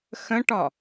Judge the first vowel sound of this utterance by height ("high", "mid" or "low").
mid